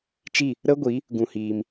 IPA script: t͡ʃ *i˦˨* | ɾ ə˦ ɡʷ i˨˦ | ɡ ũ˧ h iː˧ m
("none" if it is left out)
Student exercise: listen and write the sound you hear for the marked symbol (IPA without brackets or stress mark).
i˦˨